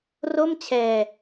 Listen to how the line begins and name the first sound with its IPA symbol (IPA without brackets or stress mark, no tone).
r